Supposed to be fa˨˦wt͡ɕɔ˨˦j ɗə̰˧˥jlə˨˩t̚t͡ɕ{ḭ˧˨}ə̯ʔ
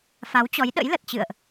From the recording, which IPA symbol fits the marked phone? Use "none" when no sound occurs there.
ɨ̰˧˨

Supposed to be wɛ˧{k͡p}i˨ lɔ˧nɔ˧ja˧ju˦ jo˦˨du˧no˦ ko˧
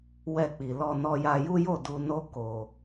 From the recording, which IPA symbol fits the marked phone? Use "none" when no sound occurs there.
k͡p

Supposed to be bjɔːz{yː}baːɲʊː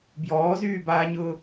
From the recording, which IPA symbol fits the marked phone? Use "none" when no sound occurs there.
yː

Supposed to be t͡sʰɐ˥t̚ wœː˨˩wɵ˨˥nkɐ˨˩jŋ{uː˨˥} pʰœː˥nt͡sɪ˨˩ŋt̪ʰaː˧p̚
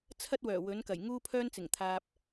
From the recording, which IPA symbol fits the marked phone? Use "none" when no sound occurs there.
uː˥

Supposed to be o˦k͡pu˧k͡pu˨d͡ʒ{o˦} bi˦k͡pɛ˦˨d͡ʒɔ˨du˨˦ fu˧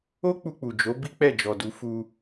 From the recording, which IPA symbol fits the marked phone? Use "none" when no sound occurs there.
o˨˦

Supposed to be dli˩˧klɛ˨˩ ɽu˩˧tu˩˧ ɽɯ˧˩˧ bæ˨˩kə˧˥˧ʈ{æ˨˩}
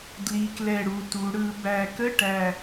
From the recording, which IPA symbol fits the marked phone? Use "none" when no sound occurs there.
æ˨˩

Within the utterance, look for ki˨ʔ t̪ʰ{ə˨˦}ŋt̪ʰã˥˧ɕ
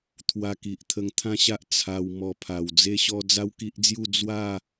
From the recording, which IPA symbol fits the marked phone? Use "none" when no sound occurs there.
ə˧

